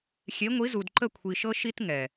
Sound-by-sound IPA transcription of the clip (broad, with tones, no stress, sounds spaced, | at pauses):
xʲ e˨˦ ŋʷ i˨˦ z u˨ d ǃ ə˦˨ kʷʰ i˨ ʃ ɤ˦ ʃ i˦ t ŋ ɛ˨